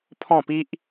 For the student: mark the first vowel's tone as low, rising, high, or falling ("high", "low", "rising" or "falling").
falling